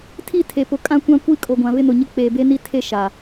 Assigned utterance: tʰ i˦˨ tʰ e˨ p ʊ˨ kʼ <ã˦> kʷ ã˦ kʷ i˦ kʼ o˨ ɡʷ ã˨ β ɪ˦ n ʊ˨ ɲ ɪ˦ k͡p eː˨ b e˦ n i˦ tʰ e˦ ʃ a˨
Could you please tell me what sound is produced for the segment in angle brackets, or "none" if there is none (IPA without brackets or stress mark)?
ã˦